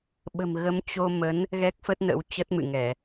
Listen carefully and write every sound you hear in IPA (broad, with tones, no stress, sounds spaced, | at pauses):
ɓ ə̤˨˩ m ɣ ə˨˦ m t͡ɕ o˧ m ə˨˦ n | ɣ ɛ˦˥ k̚ f ə˦˥ t̚ n ə̰˧˥ w t͡ɕ ə˦˥ t̚ m ɨ̰˧˨ ŋ ɛ˧˩˨